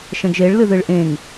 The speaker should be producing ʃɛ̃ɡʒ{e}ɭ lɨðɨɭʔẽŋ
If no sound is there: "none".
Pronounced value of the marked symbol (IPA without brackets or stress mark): e